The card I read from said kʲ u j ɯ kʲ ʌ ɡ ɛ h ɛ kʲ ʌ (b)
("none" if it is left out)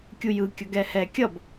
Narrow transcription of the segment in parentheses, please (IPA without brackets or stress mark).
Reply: b